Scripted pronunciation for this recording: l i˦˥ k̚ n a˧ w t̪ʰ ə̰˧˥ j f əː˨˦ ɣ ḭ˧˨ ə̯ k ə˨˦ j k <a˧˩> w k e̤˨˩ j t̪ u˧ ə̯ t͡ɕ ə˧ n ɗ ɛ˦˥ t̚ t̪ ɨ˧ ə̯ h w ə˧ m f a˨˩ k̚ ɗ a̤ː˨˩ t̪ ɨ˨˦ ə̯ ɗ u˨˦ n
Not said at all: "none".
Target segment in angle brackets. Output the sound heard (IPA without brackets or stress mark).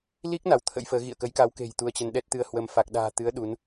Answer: a˨˦